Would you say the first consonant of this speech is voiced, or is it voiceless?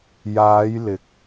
voiced